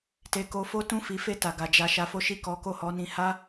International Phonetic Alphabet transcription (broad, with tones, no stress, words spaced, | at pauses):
te˨ko˨˦ fo˦tũ˦˨ fi˨˦fe˦˨ ta˨ɡa˨ d͡ʒa˨ ʃa˨˦fo˦ ʃi˦˨kɔ˨˦ko˦˨ hɔ˨˦nĩ˧ ha˦